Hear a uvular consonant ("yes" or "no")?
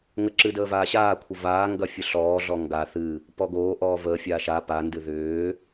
no